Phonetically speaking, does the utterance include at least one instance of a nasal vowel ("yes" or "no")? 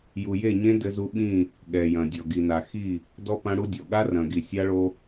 yes